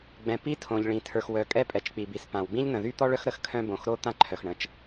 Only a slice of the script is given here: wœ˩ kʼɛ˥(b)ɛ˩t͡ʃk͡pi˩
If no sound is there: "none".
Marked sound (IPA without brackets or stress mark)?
pʼ